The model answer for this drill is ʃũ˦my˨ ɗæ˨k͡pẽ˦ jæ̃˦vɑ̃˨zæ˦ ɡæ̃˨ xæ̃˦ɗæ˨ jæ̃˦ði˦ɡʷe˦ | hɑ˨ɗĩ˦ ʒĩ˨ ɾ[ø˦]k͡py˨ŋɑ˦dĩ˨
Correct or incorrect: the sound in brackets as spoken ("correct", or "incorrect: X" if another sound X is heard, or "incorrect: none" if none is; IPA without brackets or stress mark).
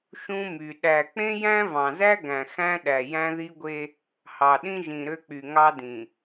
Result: correct